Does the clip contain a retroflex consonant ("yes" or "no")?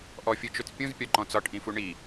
yes